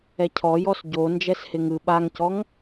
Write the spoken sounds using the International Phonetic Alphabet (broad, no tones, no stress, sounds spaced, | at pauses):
ɛ cʰ ɔ j ɔ s ɟ o n d͡ʒ ɛ s h ɪ ŋ ɯ ɓ a ŋ c ɔ ŋ